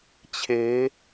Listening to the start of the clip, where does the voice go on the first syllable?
rising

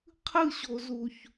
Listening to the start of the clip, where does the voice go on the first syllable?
falling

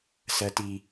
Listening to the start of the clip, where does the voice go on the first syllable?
high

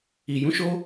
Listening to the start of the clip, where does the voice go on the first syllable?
low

